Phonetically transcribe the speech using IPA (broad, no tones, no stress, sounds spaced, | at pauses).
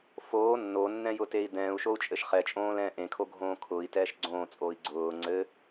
f oː nː o nː ɛ̃ j ʊ t e i̯ d ɛ̃ː u̯ ʃ o u̯ t͡ʃʼ ɘ ʃ χ ɛ t͡ʃʼ õː l ɛ̃ː ʔ ẽ kʰ o ɡʱ õː kʰ ʊː i̯ t ɛː ʃ ɡ͡ǀ õː t͡sʼ oː i̯ ɡ͡ǀ ʊː ŋ͡ǀ ɘ